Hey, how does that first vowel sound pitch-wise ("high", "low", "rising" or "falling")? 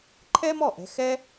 high